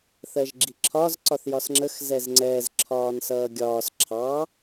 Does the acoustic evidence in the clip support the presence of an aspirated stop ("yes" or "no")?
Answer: yes